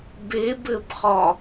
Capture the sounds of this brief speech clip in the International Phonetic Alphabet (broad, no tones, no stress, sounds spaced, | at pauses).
b e b ɘ b χ ɒ